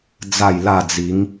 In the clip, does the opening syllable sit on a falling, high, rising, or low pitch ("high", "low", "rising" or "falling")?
falling